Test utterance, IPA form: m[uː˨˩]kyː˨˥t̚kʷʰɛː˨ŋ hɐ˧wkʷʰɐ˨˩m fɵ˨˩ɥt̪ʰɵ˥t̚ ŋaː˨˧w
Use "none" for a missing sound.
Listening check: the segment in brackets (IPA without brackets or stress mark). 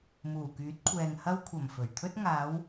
uː˨˩